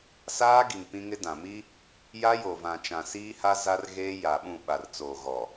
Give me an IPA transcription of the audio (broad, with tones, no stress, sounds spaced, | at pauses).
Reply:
s aː˦ ɡ i˨ ŋ p ĩ˦ ŋ ɪ˦ d ã˨ m iː˦ | j a˦ j o˨ v ã˨ t͡ʃ ã˨ s iː˦ h a˦ z a˦ r ɣ eː˦ j aː˨ ɓ ũ˦˨ ɓ a˨ r t͡s oː˨ ɣ ɔ˨